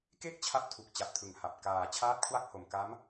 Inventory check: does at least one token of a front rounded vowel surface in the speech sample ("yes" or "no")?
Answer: no